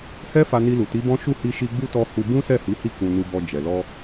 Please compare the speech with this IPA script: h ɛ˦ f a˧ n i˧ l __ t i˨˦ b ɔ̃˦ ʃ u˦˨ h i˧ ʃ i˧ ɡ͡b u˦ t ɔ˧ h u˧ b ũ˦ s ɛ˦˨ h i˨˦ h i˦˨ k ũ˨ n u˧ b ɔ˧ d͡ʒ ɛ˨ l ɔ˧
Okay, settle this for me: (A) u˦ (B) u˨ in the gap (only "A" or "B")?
B